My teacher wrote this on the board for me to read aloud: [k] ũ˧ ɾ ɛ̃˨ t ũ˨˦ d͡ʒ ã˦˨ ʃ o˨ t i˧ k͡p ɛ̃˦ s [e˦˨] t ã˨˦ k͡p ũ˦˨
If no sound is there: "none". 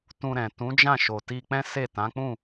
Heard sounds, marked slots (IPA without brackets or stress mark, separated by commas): t, e˦˨